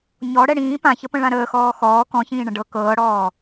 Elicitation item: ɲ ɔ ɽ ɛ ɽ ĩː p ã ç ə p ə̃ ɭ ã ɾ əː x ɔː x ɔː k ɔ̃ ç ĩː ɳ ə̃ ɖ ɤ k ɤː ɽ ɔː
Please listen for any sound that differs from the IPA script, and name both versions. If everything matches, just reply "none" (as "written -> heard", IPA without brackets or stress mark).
none